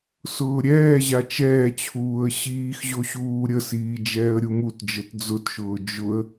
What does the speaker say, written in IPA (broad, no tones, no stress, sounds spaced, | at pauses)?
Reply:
s ʊː ɾʲ ɛː ʑ a t͡ʃ ɛː t͡ɕʰ uː ə̯ ɕ iː x ʑ o ɕ uː ɾʲ ə s iː d͡ʒ ɛː ə̯ ɾʲ u m u t d͡ʒ ə t d͡z ʊ t ʃ ʊː d͡ʒ ʊ ə̯